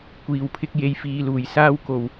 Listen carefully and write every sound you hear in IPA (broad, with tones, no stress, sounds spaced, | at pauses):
kʷ iː˨˩ w pʰ ɪ˧ k̚ j e˨ j f iː˨ l uː˨˩ j s aː˧ w k o˨˩ w